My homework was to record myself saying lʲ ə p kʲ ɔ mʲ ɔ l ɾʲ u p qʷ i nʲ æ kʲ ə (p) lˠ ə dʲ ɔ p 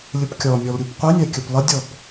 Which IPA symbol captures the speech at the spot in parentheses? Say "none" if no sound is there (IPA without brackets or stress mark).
p